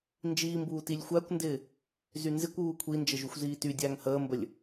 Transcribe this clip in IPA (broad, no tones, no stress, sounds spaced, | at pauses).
n d͡ʒ iː m b uː t i lʲ xʷ æ kʷ n d ɪː | z y n z ɪ kʷ uː kʷʰ i n d͡ʒ ə ʒ u xʷ z iː t y dʲ æː ŋ h əː m b ə lʲ